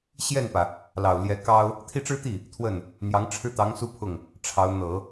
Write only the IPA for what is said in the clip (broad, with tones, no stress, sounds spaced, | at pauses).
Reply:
ɕ j ɛ˥˩ n p ä˩ | l ɑ˨˩ ʊ̯ l j ɛ˧˥ k ɑ˥ ʊ̯ | t̪ʰ i˥˩ ʈ͡ʂ ɻ̩˥ t̪ i˥˩ | t̪ʰ w ə˥˩ n | n̪ j ɑ˧˥ ŋ ʈ͡ʂʰ ɻ̩˥˩ t̪ ɑ˧˥ ŋ s u˥ pʰ ʊ˥˩ ŋ | ʈ͡ʂʰ ɑ˧˥ ʊ̯ n̪ ɤ˨˩˦